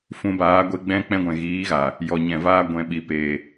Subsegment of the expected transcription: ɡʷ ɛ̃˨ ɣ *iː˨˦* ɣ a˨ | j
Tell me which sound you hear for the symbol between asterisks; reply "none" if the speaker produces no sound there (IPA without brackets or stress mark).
iː˨˦